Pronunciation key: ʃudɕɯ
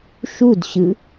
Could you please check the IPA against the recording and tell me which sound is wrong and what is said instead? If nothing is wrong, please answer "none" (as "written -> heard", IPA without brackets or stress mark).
none